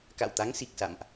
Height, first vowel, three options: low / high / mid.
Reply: low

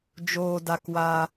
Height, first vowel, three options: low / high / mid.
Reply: mid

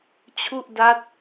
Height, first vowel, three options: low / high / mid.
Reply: high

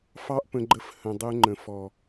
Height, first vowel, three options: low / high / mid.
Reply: low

